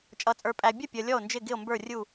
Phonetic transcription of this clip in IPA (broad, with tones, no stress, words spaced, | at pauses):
t͡ʃʼʌ˨t͡sʼə˞˨pʼæ˨bʲʌ˥˩ pʲʌ˨lʲɔ˥˩o̯ nd͡ʒɪ˥˩ɡɪ˥˩o̯mbə˞˥˩ rʲu˥˩